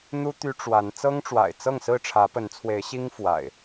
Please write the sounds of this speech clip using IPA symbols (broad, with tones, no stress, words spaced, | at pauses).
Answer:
n̪u˦ t̪y˦ʈ͡ʂwa˨˦n t͡sɤ˦ŋʈ͡ʂwa̰˨˩ɪ̯t͡sɤ˥˨ŋsɹ̩˥˨ ʈ͡ʂʰä˨˦pə˨˦nt͡sʰwe˨˦ɪ̯ɕi˦ŋ fwa̰˨˩ɪ̯